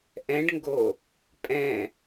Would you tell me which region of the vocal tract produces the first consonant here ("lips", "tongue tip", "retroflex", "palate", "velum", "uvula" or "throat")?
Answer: throat